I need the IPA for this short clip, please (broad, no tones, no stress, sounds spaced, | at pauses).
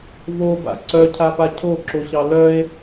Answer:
v o b a̰ ǀ œ cʰ a p a cʰ o ǁ o ɕ ɑ l œ e̯